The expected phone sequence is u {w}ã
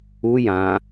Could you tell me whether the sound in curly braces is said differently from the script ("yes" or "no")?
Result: yes